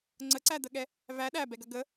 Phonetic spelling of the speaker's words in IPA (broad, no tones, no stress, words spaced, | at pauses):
ŋ͡ǀəǀæd̪əɠɛ | væ ɗæbɛɡɐ ɡə